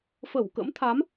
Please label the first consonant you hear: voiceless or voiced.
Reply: voiceless